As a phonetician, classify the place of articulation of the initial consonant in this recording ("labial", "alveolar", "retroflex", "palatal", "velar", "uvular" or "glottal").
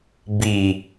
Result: labial